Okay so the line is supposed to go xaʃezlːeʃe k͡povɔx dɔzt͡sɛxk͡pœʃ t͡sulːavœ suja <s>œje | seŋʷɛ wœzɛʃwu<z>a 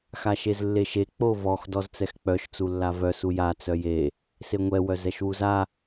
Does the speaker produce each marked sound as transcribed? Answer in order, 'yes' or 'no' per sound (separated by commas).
no, yes